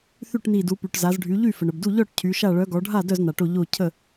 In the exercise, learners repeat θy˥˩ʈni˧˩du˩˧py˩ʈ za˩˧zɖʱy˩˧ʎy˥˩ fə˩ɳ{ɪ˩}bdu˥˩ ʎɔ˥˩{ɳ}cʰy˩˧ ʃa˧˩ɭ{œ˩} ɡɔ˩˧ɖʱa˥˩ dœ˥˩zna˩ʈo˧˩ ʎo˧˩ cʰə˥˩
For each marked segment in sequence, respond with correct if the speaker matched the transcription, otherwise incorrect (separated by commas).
incorrect, incorrect, incorrect